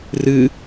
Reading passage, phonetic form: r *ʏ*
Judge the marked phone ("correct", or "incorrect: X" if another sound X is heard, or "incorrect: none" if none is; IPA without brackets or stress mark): incorrect: ɨ